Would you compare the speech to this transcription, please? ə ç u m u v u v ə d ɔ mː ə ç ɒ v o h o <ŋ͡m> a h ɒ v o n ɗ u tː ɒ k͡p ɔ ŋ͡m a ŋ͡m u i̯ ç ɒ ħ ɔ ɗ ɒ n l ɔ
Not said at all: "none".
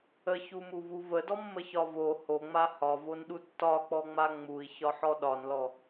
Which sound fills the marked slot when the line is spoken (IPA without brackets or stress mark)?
ŋ͡m